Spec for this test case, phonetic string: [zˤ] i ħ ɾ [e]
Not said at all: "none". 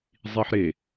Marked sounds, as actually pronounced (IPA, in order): zˤ, e

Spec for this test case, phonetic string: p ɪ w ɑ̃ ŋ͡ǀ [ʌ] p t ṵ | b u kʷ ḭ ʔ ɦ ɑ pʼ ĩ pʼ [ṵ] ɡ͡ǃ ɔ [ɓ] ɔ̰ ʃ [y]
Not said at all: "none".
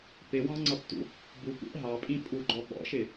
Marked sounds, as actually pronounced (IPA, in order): ʌ, u, ɓ, ɪ

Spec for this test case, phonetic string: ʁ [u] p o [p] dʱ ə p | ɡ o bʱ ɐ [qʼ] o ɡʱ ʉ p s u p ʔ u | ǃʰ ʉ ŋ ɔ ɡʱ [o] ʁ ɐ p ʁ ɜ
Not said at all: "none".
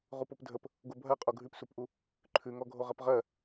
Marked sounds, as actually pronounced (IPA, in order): u, p, qʼ, o

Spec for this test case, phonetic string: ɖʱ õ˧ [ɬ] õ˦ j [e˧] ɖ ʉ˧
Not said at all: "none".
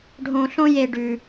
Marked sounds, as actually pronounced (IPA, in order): ɬ, e˧

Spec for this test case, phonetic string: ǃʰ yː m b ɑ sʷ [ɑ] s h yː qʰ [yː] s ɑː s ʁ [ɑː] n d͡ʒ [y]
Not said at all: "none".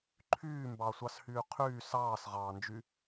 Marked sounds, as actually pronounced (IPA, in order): ɑ, yː, ɑː, y

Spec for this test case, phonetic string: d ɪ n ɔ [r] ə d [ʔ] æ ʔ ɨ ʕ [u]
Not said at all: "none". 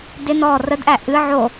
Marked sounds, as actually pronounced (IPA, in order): r, ʔ, o

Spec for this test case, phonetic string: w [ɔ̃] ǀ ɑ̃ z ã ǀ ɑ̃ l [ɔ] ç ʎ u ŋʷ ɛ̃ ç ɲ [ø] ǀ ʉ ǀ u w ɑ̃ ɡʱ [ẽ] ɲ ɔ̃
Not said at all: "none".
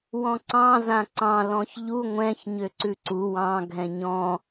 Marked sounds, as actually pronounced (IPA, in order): ɔ̃, ɔ̃, ø, ɛ̃

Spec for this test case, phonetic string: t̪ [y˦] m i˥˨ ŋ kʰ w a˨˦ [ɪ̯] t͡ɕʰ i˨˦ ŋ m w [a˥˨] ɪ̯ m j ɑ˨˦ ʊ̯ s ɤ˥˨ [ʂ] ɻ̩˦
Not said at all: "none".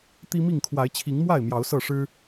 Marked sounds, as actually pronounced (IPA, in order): i˦, ɪ̯, a˥˨, ʂ

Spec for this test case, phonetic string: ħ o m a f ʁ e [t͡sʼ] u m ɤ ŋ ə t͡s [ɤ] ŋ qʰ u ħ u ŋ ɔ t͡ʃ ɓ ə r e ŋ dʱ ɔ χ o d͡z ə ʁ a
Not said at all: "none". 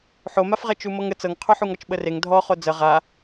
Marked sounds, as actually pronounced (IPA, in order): t͡ʃ, ɤ

